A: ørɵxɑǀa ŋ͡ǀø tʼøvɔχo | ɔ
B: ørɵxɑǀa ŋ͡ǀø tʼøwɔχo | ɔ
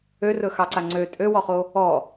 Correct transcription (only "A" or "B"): B